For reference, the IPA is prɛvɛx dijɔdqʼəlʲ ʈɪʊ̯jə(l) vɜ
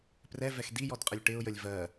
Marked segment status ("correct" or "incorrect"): incorrect